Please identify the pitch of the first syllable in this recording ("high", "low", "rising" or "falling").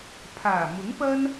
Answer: low